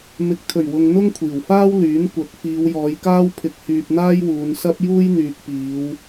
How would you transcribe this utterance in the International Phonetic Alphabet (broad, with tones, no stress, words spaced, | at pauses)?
mɪ˨˥k̚t̪ʰɵ˨˩ɥwʊ˨ŋ n̪ʊ˥ŋkʷʰiː˨˩wfaː˥w lyː˨˥nkʷɐ˨˥k̚ fiː˨˧wjɔː˨˧jkaː˥w pʰɪ˨k̚hyː˨p̚ n̪aː˥jwuː˨˧nsɐ˥p̚ juː˥jn̪yː˨k̚piː˨˧w